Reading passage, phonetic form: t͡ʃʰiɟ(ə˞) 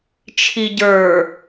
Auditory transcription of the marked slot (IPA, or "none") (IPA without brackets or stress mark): ə˞